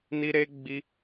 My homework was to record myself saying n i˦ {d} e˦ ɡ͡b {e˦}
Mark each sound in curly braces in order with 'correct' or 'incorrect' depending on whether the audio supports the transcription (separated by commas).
incorrect, incorrect